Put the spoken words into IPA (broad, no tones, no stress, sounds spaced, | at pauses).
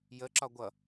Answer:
j ə ǁ ɒ ɡʷ ʌ